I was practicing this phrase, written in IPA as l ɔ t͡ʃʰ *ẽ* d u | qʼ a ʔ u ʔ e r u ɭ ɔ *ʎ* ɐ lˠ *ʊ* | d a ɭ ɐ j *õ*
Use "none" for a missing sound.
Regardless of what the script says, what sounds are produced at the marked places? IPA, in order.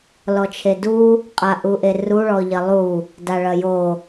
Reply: e, ʎ, u, o

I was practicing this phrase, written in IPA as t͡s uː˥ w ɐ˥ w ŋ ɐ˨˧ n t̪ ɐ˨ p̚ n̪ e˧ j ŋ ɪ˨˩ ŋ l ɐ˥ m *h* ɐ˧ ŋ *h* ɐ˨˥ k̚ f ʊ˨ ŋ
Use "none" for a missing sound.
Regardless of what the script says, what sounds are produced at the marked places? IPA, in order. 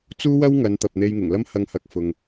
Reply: h, h

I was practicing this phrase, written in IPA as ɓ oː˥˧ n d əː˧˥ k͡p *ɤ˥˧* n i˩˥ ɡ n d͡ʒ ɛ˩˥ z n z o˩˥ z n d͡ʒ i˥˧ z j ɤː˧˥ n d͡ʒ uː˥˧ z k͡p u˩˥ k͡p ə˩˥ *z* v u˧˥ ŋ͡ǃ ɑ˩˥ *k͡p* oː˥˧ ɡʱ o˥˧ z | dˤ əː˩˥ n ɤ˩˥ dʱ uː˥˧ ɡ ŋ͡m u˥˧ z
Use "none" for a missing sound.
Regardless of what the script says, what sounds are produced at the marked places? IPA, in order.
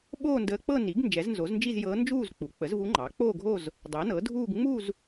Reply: ɤ˥˧, z, k͡p

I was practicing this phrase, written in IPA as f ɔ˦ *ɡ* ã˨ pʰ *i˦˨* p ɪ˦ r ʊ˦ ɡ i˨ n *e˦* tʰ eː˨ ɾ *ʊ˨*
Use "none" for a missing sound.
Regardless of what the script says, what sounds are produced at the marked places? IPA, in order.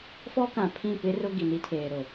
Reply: k, ĩ˦˨, i˦, ʊ˨

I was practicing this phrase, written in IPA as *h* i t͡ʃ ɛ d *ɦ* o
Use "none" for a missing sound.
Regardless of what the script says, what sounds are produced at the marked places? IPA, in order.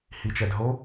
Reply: h, ɦ

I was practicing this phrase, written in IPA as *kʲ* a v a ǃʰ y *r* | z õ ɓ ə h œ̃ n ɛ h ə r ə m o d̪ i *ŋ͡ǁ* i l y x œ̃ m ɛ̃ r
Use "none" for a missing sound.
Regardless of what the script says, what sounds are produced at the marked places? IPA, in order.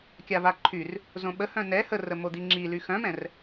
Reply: kʲ, r, ŋ͡ǁ

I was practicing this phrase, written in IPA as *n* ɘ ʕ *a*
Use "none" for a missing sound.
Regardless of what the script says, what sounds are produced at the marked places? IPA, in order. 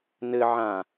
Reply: n, ã

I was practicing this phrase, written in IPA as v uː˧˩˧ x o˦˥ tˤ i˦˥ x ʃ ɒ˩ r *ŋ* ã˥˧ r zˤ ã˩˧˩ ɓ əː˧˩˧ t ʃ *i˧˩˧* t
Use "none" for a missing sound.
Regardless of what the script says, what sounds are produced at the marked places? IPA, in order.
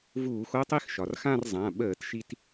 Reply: x, i˧

